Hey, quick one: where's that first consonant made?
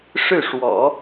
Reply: retroflex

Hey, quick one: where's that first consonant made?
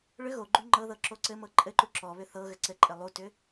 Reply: retroflex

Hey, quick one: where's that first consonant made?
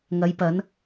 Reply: velum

